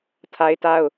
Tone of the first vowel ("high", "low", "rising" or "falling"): high